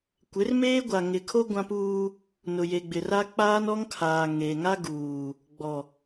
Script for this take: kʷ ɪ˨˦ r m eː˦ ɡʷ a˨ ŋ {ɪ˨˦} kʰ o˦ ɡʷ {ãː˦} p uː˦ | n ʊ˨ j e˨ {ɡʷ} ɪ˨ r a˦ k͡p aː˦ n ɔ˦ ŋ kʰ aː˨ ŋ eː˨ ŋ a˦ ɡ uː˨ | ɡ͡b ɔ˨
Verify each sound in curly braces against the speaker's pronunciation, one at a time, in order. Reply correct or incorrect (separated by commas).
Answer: incorrect, incorrect, incorrect